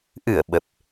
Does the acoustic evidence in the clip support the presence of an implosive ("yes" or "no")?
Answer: yes